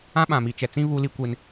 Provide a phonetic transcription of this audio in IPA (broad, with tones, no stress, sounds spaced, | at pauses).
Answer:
ã˦ ɓ ã˨ m i˨ t͡ʃ ɛ˨ t͡s ĩ˦ β u˦ l i˦ kʷ e˦ n